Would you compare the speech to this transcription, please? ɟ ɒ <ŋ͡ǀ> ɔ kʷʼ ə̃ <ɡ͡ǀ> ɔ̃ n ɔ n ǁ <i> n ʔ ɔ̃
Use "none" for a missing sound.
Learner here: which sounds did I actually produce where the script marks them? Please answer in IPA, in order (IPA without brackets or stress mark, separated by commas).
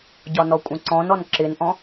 n, ǀ, ɪ